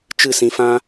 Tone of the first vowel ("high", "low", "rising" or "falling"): falling